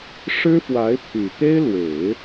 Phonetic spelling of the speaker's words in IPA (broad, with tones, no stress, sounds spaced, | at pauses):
ʂ ɻ̩˥ f w a˧˥ ɪ̯ pʰ y˨˩ t̪ e˥ ɪ̯ l w e˨˩˦ ɪ̯